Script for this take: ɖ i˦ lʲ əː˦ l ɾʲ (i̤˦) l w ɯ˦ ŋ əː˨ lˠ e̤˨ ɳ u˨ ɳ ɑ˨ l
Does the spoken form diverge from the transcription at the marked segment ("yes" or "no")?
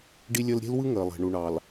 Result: yes